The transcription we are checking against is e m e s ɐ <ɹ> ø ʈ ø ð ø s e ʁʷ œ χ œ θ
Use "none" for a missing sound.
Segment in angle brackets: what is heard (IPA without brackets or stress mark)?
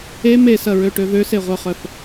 ɹ